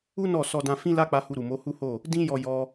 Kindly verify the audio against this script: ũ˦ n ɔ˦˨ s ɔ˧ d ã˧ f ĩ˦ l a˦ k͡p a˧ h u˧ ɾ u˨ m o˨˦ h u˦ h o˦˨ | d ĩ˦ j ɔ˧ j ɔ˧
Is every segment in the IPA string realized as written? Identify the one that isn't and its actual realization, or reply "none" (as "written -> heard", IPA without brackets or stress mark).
ũ˦ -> u˦